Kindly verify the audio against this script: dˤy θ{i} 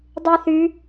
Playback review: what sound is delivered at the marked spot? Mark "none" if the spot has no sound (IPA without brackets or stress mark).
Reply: y